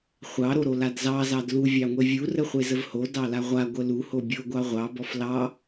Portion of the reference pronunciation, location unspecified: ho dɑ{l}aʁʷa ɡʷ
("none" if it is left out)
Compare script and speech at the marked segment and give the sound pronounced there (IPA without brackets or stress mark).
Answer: l